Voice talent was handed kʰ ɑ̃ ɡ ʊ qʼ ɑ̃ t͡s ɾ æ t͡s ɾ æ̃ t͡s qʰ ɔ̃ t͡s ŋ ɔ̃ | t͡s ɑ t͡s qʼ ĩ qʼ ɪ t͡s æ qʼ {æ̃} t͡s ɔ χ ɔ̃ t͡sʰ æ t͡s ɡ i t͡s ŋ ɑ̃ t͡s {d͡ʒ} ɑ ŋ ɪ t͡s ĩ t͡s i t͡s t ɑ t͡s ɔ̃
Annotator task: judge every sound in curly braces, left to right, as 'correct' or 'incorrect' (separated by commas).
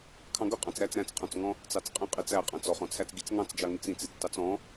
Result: correct, correct